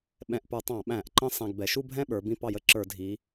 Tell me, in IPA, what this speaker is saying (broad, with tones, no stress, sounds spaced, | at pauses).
ɓ ɛ̃˧ ʔ p ə˞˧˩˧ tˤ ɑ̃˧˩˧ ɓ æ̃˧˩˧ ʔ ǃ ə̃˥˧ sˤ æ̃˧ ɡ b ɛ˩˧ ʃ u˥˧ bʱ ɛ̃˥˧ ɓ ə˞˩˧ b ĩ˧ p ɑ˧˩˧ j ə˧ ǁ ə˞˧˩˧ dʱ i˩˧